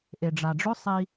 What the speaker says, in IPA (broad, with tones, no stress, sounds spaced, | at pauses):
ʔ e˨ ɖ͡ʐ a˨ ɖ͡ʐ ɵ˦ sˤ i˧